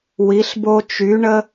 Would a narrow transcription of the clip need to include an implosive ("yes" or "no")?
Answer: no